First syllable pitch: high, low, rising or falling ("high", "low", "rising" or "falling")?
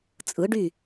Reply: rising